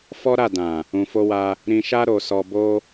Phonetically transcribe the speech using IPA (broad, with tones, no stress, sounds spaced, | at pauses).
f ɔ˦ ɾ a˦˨ d ã˨ | ũ˨ f o˧ w a˧ | ɾ ĩ˨ ʃ a˧ ɾ o˨ s ɔ˨ b o˧